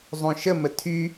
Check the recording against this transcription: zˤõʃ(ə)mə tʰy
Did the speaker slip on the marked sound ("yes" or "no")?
no